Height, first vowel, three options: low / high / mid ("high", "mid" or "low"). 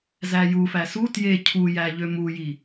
low